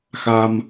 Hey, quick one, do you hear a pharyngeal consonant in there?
no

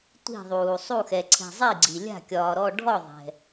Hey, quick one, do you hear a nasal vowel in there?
no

